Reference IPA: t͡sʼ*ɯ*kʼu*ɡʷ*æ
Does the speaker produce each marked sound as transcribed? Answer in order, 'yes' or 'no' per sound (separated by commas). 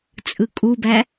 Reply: yes, no